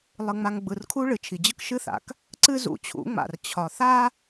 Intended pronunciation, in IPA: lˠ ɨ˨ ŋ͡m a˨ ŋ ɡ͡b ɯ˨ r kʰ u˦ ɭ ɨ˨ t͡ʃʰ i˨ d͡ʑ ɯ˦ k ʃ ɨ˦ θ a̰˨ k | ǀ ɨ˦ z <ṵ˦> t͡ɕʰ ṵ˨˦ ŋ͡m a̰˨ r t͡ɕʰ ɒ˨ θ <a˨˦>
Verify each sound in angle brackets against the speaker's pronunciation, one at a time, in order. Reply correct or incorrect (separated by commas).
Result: incorrect, incorrect